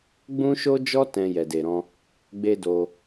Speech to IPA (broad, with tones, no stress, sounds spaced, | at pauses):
ɡ͡b ũ˦ ʃ o˦ d͡ʒ ɔ˦ t ɛ̃˧ j ɛ˨ d e˨ ɾ ɔ̃˧ | ɡ͡b e˦ d o˧